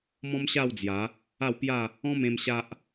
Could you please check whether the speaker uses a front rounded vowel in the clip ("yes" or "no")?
no